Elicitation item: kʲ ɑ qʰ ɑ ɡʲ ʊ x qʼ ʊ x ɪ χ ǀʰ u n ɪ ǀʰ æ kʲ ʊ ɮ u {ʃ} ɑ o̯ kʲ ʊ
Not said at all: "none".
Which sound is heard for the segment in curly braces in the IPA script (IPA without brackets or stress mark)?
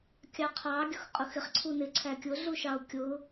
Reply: ʃ